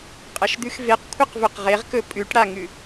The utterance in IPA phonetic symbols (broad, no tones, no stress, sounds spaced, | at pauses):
qʼ ɐ ʃ d̪ ʉ x v e q kʷʰ ɐ q v ɵ q ʁ e ʁ k ɵ pʼ ʉ ʈ ɽ a ŋ ʉ